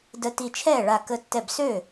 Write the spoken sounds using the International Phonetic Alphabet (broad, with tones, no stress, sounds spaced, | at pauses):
d ə˧˩ t i˧˩ t͡ʃʰ ɛː˥˩ ɭ a˧˩ k ə˧˩ tː ɛ˧˩ b s ø˥˩